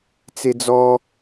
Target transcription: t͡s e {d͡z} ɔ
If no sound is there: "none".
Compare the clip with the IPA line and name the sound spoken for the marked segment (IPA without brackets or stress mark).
d͡z